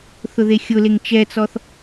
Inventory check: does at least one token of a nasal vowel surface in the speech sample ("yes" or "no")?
no